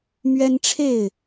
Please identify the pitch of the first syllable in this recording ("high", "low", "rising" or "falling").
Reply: high